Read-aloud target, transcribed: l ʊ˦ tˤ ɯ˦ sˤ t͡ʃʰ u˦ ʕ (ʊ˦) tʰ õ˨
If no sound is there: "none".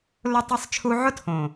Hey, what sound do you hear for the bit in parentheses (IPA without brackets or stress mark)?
ʊ˦